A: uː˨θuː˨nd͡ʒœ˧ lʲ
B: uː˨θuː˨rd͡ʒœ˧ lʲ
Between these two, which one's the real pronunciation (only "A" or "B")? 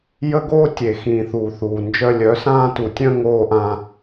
A